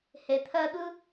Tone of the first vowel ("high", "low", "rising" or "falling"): low